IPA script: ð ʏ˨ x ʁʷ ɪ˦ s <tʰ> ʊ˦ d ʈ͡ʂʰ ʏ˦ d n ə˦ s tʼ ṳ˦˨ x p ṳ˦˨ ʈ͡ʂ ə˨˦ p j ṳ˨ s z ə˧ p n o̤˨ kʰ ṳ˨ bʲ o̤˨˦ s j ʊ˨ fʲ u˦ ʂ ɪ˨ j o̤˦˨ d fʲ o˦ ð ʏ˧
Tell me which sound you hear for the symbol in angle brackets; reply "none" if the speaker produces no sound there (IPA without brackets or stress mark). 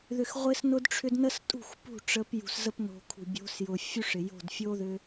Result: n